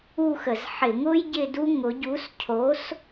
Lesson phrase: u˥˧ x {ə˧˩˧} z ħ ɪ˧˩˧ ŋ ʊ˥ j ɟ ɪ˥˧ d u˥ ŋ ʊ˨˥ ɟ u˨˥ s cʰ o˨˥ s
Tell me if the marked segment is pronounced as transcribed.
yes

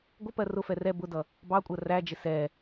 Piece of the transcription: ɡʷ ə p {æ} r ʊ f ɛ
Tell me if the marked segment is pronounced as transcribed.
no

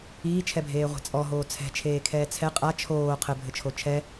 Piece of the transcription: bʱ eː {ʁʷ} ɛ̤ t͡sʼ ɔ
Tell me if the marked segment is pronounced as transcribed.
yes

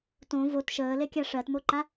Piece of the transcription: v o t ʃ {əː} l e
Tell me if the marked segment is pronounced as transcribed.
yes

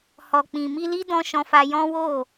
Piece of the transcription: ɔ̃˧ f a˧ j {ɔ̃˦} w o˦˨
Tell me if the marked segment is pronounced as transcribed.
yes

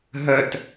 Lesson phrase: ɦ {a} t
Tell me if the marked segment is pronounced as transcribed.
no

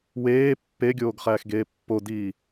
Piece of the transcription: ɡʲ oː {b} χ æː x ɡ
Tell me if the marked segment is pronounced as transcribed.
no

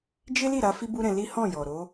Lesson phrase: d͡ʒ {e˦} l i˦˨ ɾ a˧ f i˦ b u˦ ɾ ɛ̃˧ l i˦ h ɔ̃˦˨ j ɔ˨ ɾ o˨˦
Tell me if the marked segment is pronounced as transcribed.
yes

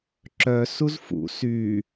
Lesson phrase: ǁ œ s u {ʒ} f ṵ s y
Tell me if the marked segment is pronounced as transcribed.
no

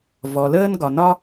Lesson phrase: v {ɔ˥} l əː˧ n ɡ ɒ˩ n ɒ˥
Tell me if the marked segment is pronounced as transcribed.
no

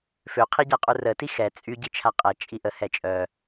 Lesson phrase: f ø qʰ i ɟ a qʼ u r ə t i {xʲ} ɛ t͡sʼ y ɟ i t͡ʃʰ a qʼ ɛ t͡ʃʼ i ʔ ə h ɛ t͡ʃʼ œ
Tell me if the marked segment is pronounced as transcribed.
no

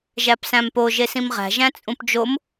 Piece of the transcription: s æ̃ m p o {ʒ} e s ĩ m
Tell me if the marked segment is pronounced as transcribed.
yes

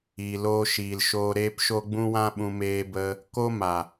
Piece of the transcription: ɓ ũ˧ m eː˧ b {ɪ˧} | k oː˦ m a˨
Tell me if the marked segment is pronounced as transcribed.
no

